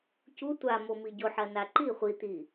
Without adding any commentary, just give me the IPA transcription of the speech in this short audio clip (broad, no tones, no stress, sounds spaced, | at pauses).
c u tʷ a m o m i ɟ o ħ ɐ n a ǃ i χʷ i t̪ i